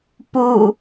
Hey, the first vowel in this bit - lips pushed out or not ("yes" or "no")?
yes